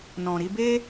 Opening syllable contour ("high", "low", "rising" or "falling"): low